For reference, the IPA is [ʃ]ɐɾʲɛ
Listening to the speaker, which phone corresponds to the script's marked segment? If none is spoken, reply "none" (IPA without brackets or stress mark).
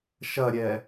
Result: ʃ